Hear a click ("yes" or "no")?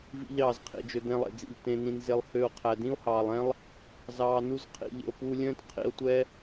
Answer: no